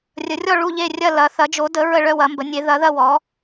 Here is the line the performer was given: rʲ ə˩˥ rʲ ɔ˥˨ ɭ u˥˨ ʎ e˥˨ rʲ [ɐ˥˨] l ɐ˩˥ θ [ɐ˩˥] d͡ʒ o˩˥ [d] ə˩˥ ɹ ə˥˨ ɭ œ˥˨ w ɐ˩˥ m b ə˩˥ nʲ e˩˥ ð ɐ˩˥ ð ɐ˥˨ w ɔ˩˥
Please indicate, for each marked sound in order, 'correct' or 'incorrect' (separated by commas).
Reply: correct, correct, correct